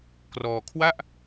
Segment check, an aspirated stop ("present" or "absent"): present